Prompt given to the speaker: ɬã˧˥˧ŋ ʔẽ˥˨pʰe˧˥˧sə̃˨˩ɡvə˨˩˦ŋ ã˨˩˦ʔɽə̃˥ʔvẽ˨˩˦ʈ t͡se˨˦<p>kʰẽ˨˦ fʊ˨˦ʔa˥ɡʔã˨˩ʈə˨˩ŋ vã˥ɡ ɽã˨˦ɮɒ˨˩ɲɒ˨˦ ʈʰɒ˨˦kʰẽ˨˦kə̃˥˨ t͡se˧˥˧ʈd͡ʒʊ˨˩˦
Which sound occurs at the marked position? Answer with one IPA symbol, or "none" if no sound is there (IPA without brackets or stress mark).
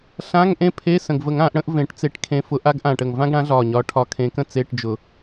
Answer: ʈ